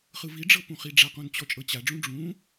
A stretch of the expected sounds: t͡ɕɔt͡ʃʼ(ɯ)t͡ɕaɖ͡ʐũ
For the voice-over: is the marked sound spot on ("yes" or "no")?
no